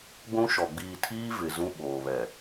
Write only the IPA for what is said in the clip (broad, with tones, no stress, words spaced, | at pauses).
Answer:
ɡʷũ˦ʃɔ˨ ɡ͡biː˨tʰiː˦ vɪ˨zũ˦ ɓoː˨ βɛ˨